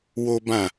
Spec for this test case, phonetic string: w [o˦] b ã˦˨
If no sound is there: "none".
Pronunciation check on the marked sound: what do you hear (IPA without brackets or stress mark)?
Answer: o˦